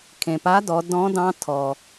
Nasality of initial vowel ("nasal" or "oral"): nasal